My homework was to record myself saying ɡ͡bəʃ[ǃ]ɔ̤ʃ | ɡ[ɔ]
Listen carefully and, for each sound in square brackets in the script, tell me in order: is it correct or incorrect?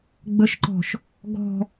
correct, incorrect

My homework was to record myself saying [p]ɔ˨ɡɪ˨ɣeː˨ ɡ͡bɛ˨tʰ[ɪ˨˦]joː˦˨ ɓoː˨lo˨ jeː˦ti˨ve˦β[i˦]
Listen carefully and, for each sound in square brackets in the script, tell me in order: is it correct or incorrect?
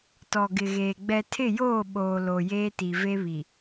incorrect, incorrect, incorrect

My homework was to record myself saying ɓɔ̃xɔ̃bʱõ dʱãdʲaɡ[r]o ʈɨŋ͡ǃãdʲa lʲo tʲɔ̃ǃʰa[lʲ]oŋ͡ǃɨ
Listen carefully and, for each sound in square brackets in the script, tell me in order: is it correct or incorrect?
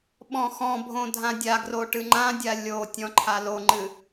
correct, incorrect

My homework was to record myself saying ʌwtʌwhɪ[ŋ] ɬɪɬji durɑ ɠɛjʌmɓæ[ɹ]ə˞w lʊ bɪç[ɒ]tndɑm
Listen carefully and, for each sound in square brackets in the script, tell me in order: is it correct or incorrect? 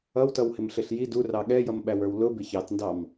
incorrect, incorrect, incorrect

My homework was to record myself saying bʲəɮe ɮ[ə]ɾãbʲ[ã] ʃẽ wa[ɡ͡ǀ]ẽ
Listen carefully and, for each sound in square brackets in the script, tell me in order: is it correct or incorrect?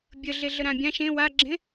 correct, correct, incorrect

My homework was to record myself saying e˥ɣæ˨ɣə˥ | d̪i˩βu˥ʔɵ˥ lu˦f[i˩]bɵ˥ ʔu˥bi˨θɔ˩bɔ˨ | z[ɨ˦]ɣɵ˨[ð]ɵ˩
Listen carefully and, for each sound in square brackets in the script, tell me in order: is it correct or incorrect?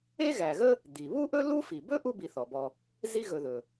correct, incorrect, correct

